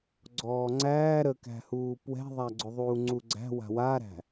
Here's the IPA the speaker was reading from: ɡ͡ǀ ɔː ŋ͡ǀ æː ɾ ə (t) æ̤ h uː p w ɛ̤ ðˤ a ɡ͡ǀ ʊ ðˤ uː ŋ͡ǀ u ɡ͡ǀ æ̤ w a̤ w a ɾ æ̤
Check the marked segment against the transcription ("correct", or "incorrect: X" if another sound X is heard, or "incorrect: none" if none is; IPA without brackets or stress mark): incorrect: k